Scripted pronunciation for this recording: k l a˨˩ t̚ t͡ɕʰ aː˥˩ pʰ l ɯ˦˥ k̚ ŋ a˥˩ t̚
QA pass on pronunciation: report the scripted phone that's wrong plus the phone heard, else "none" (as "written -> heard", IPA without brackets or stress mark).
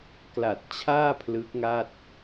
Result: none